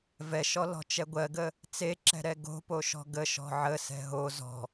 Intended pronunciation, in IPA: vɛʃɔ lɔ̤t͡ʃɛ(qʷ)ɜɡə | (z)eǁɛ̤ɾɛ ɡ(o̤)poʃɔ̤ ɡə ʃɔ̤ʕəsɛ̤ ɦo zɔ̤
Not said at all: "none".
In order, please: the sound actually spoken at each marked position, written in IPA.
ɡʷ, t͡s, o̤

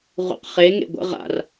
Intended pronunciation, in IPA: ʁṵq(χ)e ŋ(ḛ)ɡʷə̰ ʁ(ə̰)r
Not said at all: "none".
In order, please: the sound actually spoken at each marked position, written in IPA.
χ, ḛ, a̰

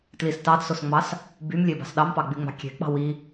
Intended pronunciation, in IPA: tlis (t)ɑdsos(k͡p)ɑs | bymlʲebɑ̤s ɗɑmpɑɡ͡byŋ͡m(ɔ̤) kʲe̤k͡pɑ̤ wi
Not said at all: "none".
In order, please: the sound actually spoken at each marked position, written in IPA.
t, ŋ͡m, ɑ̤

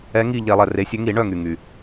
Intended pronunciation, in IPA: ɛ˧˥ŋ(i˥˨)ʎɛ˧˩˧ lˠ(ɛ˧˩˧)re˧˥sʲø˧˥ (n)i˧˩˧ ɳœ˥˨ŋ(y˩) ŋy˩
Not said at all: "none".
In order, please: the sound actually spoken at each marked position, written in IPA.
i˥˨, ɛ˩, ŋ, y˩

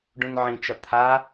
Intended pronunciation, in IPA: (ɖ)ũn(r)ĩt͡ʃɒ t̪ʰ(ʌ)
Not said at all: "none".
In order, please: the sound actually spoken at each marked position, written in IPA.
ɖ, ʕ, a

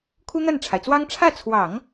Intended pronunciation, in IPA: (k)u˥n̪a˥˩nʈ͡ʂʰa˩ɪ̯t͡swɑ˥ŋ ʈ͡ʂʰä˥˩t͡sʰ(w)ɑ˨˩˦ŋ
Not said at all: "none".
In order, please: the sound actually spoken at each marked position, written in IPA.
kʰ, w

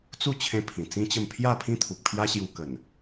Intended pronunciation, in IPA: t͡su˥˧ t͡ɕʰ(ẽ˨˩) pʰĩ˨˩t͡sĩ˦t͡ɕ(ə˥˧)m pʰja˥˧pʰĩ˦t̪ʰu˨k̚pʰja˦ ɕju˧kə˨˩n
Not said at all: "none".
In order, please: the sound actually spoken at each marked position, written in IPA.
ẽ˧, ə˥˧

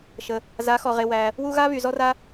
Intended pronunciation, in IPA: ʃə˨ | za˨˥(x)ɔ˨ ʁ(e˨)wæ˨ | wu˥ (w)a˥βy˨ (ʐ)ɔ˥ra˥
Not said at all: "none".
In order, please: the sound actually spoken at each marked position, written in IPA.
x, e˨, ɣ, z

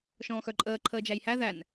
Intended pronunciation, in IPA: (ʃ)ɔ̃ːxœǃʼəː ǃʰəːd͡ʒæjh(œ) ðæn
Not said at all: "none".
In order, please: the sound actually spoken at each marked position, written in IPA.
ʃ, æ

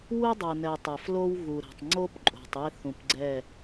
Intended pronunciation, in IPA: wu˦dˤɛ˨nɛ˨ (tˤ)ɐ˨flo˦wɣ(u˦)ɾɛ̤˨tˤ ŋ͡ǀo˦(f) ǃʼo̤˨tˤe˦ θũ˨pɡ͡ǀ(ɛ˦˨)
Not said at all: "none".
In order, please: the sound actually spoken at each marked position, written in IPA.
tˤ, u˨, p, ɛ˦˨

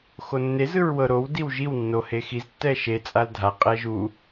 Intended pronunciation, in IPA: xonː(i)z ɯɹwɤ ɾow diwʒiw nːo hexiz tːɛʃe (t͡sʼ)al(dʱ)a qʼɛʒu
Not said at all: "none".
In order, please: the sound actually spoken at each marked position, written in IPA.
e, t͡sʼ, dʱ

